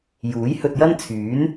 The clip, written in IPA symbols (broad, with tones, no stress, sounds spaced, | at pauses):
j uː˨˥ j h ɵ˧ t̚ j ɐ˥ n t͡sʰ yː˨˥ n